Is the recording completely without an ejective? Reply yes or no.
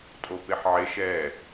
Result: no